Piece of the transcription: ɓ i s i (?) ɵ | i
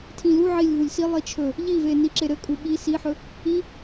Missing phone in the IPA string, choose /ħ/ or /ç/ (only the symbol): ħ